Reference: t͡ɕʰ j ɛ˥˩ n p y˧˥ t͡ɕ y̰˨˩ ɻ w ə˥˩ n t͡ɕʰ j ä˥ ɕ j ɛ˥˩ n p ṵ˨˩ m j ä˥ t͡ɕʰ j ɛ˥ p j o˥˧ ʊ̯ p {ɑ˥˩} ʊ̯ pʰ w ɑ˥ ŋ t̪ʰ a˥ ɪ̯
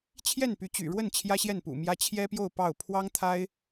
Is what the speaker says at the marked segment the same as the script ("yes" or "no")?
yes